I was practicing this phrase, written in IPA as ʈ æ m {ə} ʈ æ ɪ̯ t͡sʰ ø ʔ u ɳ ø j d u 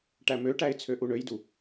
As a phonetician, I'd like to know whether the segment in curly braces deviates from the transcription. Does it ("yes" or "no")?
yes